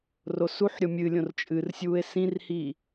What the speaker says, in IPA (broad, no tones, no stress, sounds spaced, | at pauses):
r o s u ħ ɾʲ o mʲ ɨ lʲ õ r t͡ʃʼ ɨ r sʲ uː e̯ s ĩ r h iː